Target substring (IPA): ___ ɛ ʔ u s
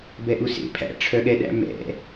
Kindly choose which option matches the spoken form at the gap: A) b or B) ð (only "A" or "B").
A